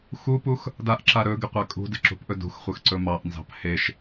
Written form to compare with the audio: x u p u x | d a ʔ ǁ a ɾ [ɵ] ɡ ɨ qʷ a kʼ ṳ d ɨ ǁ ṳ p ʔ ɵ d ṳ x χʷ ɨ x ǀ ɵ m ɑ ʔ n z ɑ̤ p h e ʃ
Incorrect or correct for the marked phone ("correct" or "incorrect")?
correct